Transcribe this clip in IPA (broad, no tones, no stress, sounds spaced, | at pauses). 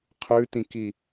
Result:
qʰ ʉ t ĩ k i